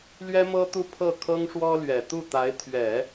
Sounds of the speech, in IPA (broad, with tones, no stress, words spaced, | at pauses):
lɥɛ˥mɤ˥t̪u˥˧ pʰɤ˥˩kʰɤ˥ŋʂwɔ˥lɥɛ˨˩ t̪u˥˩t̪a˧˥ɪ̯ t̪ʰɥɛ˨˩˦